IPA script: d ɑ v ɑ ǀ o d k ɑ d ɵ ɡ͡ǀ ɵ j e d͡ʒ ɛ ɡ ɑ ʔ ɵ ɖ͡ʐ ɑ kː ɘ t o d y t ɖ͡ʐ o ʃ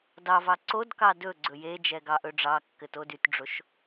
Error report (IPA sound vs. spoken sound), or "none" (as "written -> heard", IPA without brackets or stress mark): none